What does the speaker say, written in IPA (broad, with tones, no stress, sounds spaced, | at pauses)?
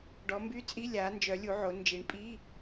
ɖ ɔ˩˧ m b y˧˥˧ t͡sʼ i˧˥˧ lʲ aː˩˧ n d͡ʒ œ˩˧ lʲ u˩˧ ʕ o˩˧ n d͡ʒ i˩˧ ɳ pʼ iː˧˥˧